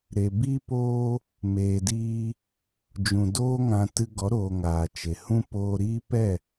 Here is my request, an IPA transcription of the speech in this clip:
ɾe˨ bi˦poː˦ | meː˨diː˧ | d͡ʒũ˨doː˦ŋã˧ tɨ˧ɡɔ˨˦ɾoː˨ ŋaː˨t͡ʃe˨ hũ˦ poː˧ɾiː˦ pɛ˦˨

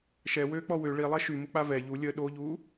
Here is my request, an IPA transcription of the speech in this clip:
ʃɛwøːk͡pɔ wø ɭilˠɛ ʃymuk͡pa vɛ ʎu lʲə ɗoʎuː

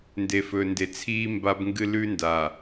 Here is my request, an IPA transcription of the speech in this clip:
nde˨fɵ˨nde˨t͡sʰiː˦ mba˦bŋɡɨ˦ lʉ˦nda˨

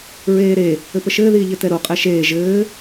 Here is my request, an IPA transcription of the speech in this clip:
ɹeːɾe | ɘpəʃɘː ðiːʎɘtɛɾo qʼɛʃeː ʒɘː

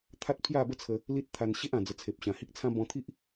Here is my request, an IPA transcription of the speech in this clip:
t̪ʰa˦t̚pʰja˥˧bə˥˧t͡sʰə˧ | li˦t̚t̪ʰa˧n ɕe˦ʔã˨˩d͡zə˨˩ t͡sʰe˨p̚ɕã˨˩hi˦k̚t͡sʰã˦ bɔ̃˧t̪ʰi˦ʔ

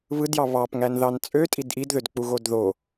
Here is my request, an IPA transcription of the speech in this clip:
βɯdjɑ βɑpŋænðɑn t͡sʼøtʼid ʔidðødk͡puɣod ðo

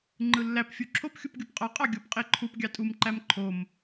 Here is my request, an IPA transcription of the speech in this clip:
ŋ͡ǃɯlːæp fʲuǁʰop xʲupɡʲopqʼɑ qʼɑɡʲop qʼeǃʰup ɡʲɑtʼum ǃæmǃʰom

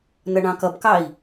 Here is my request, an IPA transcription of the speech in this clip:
nʌɳɑ̃kʌbkɑi̯

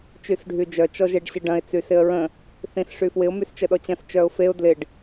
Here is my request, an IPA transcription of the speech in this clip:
t͡ʃysɖʱyd͡ʒœ t͡ʃɔʒeɖɕəɖɐ̃ɪ̯ t͡sysɪə̯ɹə̃ | θĩs ʂyfwɪʊ̯ myst͡ʃəɗɔt͡ɕɐ̃s t͡ʃœʊ̯feʊ̯ dlɪɖ

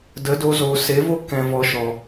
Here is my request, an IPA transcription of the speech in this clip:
də˨˦do˧ zoː˨se˨˦vo˦ kɛ̃˧ vɔ˨˦ʃɔ˨

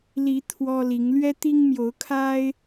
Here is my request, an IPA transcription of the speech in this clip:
li˨˦ t̪ʰwɔ˦li˨˦ŋ lɥɛ˦ t̪i˦ŋmjo˨˦ʊ̯kʰa˦ɪ̯

